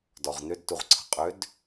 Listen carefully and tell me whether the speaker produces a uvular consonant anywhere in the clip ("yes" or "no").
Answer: yes